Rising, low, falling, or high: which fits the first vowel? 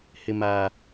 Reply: low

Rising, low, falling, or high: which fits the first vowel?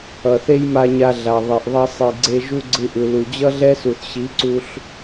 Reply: low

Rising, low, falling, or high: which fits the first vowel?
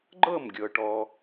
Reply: falling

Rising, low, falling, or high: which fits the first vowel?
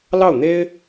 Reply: falling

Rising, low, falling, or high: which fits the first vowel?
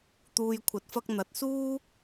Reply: low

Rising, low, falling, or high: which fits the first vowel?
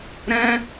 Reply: high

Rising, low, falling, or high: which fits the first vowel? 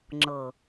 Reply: low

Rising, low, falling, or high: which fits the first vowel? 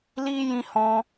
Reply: high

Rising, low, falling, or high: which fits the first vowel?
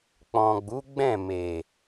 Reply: low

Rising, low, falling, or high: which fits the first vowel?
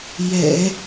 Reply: low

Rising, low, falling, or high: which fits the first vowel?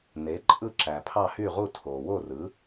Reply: rising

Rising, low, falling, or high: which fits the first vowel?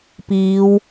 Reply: rising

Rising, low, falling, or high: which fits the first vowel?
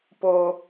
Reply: high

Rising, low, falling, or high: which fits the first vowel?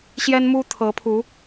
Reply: high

